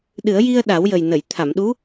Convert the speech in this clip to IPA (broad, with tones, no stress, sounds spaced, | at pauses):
ɗ ɨ˨˩˦ ə̯ j i˧ ə̯ ɗ a˨˩˦ w j ə˨˩ j n ə˨˩˨ j t̪ʰ a˨˩˨ m ɗ u˧˥